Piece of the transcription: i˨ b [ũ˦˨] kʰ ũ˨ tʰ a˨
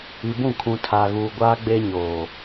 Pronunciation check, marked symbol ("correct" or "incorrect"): correct